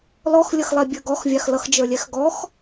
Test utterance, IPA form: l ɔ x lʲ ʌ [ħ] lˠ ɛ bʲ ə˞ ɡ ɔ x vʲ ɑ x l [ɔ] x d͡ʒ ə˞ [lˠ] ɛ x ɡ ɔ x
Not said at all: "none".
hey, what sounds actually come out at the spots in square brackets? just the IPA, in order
x, ʌ, lʲ

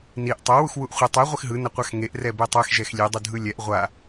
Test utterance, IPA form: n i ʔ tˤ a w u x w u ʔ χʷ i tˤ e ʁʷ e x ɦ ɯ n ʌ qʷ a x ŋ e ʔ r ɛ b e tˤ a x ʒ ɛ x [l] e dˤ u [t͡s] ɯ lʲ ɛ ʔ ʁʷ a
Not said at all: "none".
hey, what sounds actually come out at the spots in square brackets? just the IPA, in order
lʲ, dʱ

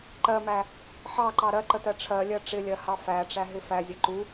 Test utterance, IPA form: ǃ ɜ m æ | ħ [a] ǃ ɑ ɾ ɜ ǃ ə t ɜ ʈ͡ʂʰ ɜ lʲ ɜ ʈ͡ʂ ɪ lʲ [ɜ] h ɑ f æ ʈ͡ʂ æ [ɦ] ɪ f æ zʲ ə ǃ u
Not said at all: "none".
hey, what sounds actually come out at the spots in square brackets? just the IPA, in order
ɑ, ɜ, ɦ

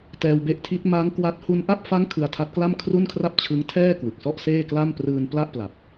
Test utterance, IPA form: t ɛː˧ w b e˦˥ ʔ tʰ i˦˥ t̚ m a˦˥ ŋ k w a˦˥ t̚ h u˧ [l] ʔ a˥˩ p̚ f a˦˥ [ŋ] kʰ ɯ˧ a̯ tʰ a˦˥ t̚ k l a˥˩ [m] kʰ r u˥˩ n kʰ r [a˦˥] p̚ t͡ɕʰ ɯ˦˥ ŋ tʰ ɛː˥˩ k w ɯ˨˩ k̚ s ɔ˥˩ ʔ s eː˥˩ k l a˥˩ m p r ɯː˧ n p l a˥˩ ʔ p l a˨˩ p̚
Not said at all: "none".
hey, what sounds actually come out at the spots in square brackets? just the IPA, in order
n, ŋ, m, a˥˩

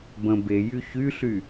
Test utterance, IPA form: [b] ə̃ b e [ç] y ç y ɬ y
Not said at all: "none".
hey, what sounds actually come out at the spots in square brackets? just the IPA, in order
b, j

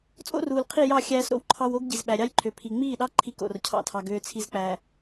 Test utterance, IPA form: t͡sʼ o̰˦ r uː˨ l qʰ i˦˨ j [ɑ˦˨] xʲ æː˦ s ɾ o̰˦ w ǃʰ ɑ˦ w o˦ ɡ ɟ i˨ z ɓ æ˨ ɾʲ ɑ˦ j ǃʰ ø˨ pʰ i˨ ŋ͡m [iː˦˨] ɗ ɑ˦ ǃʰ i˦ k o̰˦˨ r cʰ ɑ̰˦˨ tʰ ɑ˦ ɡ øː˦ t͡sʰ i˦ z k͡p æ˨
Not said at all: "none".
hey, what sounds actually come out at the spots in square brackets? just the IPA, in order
ɑ˦˨, iː˦˨

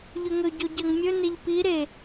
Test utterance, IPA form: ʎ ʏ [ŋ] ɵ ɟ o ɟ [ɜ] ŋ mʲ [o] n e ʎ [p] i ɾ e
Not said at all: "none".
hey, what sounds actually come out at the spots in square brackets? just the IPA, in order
ŋ, ɜ, ɵ, p

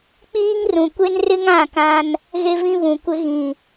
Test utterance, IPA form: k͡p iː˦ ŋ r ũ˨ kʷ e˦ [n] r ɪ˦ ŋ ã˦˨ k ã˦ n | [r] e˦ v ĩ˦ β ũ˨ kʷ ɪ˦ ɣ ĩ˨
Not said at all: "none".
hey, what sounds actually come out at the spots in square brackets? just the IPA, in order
n, ɣ

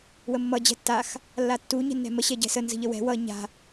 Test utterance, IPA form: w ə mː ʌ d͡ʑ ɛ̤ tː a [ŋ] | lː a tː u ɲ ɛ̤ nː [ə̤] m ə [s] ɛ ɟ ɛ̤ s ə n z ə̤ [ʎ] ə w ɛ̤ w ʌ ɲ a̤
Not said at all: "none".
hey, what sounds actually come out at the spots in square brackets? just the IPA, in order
x, ɛ̤, ɕ, ʎ

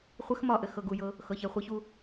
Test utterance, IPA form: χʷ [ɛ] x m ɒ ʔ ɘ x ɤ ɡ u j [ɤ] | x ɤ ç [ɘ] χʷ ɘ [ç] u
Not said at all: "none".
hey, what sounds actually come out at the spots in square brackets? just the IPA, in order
ɘ, ɤ, ɛ, ç

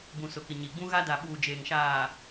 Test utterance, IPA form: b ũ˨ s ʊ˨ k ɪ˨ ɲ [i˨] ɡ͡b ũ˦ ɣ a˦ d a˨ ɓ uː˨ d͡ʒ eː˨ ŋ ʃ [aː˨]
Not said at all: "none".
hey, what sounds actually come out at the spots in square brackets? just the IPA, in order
i˨, aː˨

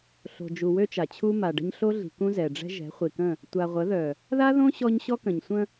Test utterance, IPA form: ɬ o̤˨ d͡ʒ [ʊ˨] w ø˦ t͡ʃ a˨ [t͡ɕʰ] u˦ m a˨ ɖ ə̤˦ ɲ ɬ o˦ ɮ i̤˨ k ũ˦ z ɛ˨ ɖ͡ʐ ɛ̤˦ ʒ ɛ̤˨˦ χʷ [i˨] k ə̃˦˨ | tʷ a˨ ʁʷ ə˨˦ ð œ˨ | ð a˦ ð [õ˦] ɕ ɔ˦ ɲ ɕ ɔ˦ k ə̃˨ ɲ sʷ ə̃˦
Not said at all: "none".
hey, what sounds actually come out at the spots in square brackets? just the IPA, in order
u˨, t͡ɕʰ, i˨, õ˦

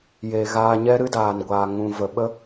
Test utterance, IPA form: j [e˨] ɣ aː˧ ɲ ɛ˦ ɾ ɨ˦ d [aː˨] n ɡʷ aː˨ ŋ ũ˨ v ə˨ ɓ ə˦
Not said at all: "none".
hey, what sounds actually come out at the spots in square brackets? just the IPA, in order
e˨, aː˨

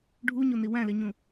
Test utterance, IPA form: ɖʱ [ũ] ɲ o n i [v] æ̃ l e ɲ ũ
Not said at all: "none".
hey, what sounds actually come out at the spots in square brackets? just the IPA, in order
u, w

